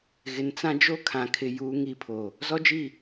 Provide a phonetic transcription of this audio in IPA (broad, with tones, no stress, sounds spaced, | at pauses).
ɣ ɪ˨ n t͡s ã˦ d͡ʒ o˦ kʰ ã˨ kʰ ɪ˨ j uː˨ ŋ i˨ pʰ o˨ | z ɔ˦ d͡ʒ i˦˨